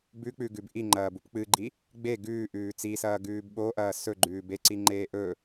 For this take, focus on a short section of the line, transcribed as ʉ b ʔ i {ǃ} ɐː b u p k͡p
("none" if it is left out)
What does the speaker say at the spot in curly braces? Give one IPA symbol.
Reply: ŋ͡ǃ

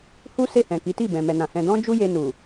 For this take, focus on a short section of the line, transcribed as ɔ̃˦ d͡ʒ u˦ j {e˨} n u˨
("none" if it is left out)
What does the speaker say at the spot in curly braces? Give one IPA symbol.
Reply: e˧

